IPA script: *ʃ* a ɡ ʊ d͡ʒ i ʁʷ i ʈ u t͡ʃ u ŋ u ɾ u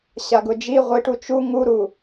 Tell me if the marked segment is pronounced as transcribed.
no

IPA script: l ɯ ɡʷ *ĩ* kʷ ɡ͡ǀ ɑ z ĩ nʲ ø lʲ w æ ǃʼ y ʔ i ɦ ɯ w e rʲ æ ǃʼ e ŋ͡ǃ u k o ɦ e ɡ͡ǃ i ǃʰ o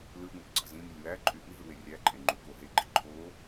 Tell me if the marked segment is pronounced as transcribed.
no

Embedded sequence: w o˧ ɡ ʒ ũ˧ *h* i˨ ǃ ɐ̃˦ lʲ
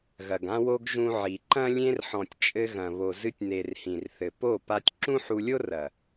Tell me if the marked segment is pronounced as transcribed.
no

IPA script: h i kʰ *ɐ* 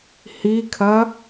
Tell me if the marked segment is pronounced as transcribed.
yes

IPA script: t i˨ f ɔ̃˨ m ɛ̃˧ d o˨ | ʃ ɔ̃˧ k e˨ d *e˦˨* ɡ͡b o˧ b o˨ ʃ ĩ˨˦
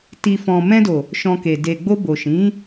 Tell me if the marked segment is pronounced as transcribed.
no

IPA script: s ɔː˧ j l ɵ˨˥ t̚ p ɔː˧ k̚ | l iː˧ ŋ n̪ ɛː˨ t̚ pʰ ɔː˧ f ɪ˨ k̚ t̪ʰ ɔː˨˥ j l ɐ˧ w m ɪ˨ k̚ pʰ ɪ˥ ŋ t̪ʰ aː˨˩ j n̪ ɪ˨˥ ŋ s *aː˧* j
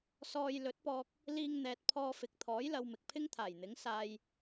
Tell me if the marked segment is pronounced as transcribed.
yes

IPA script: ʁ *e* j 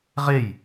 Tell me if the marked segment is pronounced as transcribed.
yes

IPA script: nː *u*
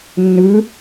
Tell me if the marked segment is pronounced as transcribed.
no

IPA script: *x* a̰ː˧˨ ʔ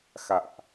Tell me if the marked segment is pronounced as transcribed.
yes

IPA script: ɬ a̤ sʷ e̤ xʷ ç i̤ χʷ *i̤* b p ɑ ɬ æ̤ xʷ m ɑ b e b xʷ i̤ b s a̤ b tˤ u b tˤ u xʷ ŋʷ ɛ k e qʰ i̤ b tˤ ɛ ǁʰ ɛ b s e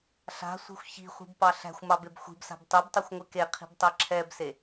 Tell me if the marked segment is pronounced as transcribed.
yes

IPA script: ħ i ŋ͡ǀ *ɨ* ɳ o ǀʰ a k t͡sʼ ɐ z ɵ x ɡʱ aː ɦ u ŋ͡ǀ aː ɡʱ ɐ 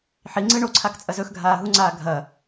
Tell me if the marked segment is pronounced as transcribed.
yes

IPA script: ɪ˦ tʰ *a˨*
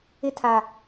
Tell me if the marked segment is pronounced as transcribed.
yes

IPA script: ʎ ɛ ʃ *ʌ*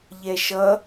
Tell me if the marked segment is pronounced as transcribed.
yes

